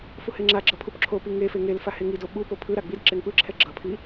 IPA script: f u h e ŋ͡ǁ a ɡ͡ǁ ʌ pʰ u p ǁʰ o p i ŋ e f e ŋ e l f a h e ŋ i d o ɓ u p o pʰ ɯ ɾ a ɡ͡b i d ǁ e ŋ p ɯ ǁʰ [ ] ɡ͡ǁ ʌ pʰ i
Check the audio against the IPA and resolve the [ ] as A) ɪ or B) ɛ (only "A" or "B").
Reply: B